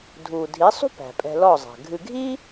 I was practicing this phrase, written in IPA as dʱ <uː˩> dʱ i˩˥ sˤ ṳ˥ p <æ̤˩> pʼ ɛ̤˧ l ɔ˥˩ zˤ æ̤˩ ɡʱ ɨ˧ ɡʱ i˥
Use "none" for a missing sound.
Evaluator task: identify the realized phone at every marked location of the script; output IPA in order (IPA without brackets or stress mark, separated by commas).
uː˩, æ̤˩